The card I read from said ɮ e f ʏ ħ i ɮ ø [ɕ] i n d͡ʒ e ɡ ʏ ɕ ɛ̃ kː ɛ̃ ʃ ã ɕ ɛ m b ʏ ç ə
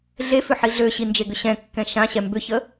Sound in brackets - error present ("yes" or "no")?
no